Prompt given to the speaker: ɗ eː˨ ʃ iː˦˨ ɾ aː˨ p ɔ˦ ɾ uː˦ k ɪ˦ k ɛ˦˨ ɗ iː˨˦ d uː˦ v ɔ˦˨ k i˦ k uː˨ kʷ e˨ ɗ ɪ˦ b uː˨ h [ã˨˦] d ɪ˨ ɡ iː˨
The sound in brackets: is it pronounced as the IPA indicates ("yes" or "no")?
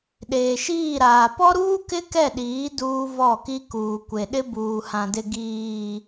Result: no